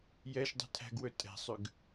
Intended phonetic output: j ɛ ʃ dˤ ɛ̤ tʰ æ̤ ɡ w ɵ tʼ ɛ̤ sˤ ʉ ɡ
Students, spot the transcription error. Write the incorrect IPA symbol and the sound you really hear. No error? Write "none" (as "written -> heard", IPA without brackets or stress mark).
none